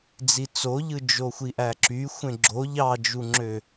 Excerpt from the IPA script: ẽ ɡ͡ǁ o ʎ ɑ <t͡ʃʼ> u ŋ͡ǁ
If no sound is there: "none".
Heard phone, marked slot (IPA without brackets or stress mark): d͡ʒ